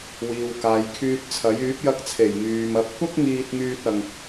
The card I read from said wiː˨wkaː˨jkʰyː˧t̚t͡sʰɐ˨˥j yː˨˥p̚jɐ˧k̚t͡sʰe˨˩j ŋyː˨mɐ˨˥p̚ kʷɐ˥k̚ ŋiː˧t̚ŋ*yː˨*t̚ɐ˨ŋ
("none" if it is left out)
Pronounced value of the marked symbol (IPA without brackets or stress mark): yː˧